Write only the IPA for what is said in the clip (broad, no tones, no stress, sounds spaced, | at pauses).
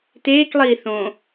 t eː k lˠ iː θ õ